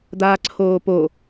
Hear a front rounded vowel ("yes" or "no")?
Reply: no